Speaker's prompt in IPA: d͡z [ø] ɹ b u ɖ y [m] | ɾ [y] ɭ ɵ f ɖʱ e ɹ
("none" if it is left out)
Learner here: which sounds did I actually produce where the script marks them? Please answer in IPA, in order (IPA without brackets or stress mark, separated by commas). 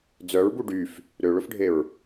œ, f, ø